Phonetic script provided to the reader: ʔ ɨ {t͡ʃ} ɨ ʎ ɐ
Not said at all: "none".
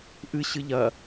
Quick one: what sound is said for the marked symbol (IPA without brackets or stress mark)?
ɕ